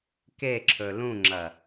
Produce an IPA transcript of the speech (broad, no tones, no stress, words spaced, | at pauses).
keǁʰɵ lũŋ͡ǁɐ